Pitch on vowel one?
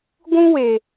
high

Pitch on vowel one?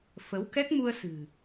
rising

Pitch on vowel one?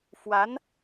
rising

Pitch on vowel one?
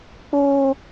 high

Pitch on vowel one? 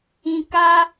low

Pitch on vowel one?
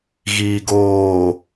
low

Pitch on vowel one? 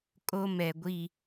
high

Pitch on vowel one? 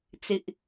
high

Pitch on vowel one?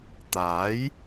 rising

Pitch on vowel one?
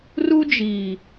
high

